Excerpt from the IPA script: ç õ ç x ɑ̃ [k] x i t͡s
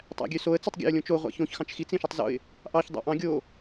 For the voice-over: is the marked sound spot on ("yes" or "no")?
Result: no